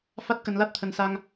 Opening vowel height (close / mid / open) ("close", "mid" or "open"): open